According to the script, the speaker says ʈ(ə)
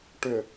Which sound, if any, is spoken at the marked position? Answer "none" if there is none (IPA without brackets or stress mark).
ʏ